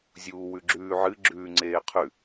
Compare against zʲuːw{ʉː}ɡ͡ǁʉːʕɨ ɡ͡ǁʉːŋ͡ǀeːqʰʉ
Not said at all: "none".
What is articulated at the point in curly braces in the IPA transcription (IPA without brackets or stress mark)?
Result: ʉ